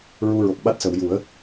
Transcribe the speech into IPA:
ɹu˧ɹo˨˩k̚ɓa˦˥t̚sə˨˩˨w ju˨˩˦ə̯

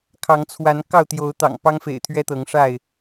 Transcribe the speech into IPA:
kʰɑ˨˦ŋt͡sʰwa˨˦n kɑ˥˨ʊ̯t̪jo˨˦ʊ̯t̪ɑ̰˨˩ŋ pɑ˦ŋfḛ˨˩ɪ̯t̪ʰɥɛ˦ t̪ɤ˨˦ŋʂa˥˨ɪ̯

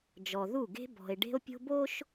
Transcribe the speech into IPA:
d͡ʒɔ˨ðu˦˨ɡe̤˦ bɔ̤˨e̯ ɖe̤˦o̯pʲo̤˦bo˦ʃ

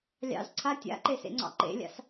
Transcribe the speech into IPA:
lʲɑ̰z ǀʰa tʲa̰ǃesḛŋ͡ǀɑ̰ ǃḛlʲa̰s

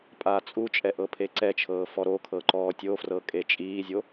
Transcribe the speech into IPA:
pʼaːt͡sʼut͡ʃʼɛ ʔɤpʰeǀɛt͡ʃʰɤː fɔɾokʰɤ ǃɔːtʲofrɤ kʼet͡ʃʼiːzʲo

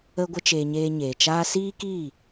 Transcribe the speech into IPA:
ə˧ɡʷə˧t͡ʃeː˨ ɲeː˧ɲeː˨t͡ʃaː˦ siː˦ki˦˨

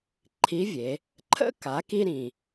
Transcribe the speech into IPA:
ǃʰi˧˥vʲe˩˧ | ǃʰə̰˥ ka˩˧ki˧ɾĩ˩

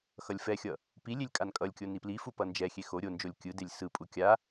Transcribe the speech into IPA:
xʌlʲfɛxʲʌ | pilʲelʲ kʼankʼʌlʲkʲo niplifu pʌnd͡ʒɛxʲe xo ɾʲond͡ʒolʲ kʲɯ delʲsɯpʼu kʲa

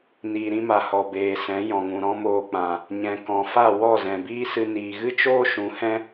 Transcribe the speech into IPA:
niː˨ɾĩ˧ma˨ hɔ˨beː˨sɛ̃˨˦ jɔ̃˨ŋũ˨ɾɔ̃˦moː˧ k͡pã˨ | ɲɛ̃˨kɔ̃˨fa˦˨ wɔ˦˨zɛ̃˨biː˦sɨ˧ niː˨ɣɨ˦t͡ʃoː˦ʃũ˨˦ hɛ̃˦

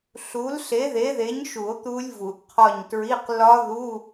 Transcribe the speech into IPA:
ɬu˨˥l ɬe˨˥ðe˨˥ðe˨˥ɲʃu˨˩˦o̯ t̪u˦˥lʲvu˨˩˦ʔqʰɒ˦˨ɲtɹi˧˥˧q lɒ˦˥ ðu˧˥˧

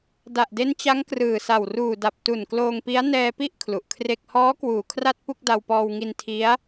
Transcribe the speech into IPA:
da˨˩ʔde˦˥nt͡ɕa˦˥ŋ krɯː˨˩sa˨˩w ruː˨˩da˨˩p̚ tu˨˩nkloː˧ŋpi˦˥a̯ nɛː˧pi˥˩ʔ kʰlu˨˩ʔkʰre˥˩k̚ hɔː˦˥kwuː˨˩ kʰra˥˩t̚pu˥˩k̚ da˧wpɔː˧wŋi˧n tʰi˦˥a̯

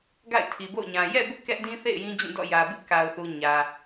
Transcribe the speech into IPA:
ɡa̰˦˨ɪ̯tʰi˨bo̰˦˨ʊ̯ɲã˨ jɛ̰˦˨bʊ˦ʔ kɛ˦ʔdĩ˦θḛ˦˨ɪ̯ jĩ˦d͡ʑũ˦˨dɔ̰˦˨ jä˨bɪ˦ʔka˨ʊ̯θu˨ ɲä˨

